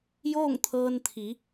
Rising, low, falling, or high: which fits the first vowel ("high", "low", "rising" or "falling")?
falling